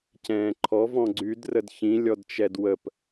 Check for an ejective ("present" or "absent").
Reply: absent